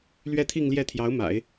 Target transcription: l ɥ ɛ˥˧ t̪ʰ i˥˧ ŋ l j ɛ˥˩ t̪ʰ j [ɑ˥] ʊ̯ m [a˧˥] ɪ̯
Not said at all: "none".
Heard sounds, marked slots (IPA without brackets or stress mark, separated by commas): ɑ˧˥, a̰˨˩˦